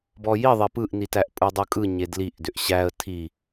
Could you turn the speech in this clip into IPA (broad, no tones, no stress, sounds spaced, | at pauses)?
b ɔ j i ðˤ e p ɯ ʔ n i t æ ʔ pʼ ɯ dˤ ɯ kʼ ɯ ɲ e d l i ʔ d ʏ ʔ ɕ æ ə̯ tʰ i